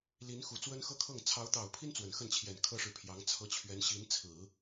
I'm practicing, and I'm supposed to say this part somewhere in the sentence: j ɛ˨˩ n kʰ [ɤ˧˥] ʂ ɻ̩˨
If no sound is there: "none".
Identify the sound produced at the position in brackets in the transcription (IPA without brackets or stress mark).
ɤ˥